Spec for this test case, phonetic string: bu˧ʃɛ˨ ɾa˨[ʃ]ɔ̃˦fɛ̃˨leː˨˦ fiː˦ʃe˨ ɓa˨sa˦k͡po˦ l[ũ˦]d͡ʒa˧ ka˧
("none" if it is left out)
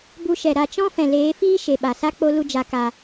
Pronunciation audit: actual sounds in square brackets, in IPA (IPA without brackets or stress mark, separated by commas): t͡ʃ, u˦